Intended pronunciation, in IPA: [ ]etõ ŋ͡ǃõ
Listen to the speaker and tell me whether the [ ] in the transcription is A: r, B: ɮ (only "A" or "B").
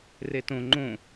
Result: A